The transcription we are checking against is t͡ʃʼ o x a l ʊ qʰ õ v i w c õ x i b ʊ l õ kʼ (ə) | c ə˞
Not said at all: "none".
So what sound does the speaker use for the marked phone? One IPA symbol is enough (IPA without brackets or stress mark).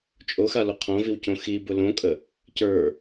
ə